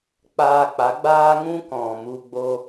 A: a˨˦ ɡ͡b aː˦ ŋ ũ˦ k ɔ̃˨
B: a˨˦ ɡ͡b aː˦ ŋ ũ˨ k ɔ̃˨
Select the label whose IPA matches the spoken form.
A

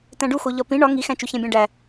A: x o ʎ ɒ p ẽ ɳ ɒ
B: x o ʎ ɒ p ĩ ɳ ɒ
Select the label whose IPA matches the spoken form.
B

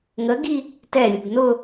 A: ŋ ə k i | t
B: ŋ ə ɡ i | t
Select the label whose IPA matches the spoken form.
B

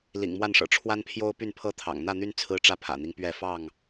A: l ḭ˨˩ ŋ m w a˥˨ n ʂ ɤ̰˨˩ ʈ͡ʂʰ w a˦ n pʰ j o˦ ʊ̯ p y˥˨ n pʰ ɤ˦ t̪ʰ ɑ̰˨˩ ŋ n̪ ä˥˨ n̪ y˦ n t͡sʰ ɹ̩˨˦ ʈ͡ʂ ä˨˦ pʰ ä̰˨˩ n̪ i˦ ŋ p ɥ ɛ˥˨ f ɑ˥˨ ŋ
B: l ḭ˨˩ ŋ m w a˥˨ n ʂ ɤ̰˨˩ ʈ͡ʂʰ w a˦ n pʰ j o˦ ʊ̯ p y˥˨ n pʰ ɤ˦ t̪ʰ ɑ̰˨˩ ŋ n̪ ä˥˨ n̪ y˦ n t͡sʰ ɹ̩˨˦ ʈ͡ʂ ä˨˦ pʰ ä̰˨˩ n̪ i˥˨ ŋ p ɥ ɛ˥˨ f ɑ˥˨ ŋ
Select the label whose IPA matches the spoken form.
A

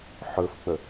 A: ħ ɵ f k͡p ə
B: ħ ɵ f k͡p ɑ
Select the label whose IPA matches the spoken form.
A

